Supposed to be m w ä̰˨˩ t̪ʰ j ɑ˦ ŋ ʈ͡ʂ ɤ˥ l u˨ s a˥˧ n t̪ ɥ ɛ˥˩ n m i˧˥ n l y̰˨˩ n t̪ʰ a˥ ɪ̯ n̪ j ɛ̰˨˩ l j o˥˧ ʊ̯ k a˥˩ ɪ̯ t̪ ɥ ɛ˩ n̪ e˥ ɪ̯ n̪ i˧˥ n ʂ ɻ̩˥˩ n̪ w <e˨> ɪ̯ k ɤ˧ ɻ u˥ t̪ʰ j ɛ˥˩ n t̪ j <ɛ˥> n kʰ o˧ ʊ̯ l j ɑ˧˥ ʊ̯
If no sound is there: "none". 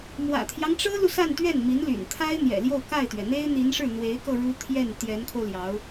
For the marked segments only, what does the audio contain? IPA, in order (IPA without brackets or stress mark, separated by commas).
e˧˥, ɛ˧˥